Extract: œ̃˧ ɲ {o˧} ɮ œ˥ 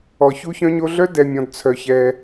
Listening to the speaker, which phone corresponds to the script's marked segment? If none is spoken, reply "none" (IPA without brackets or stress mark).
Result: o˧